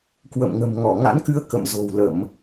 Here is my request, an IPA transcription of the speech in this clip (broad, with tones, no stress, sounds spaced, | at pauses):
k w ə̰˧˨ m ŋ ə̤˨˩ m ŋ ɔ˧˩ ŋ a̰˧˥ n k ɨ˧ ə̯ k ə̰˧˨ m z o̤˨˩ w l ə˧˩˨ m